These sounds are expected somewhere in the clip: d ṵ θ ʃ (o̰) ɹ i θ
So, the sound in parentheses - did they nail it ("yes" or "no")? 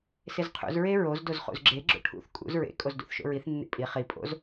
yes